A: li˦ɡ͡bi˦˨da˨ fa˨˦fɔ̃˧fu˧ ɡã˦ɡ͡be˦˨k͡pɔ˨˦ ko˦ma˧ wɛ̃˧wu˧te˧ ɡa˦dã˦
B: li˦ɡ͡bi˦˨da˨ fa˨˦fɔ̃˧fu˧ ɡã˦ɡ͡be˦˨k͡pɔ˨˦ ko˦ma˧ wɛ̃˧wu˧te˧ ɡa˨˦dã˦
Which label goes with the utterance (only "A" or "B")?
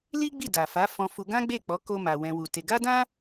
A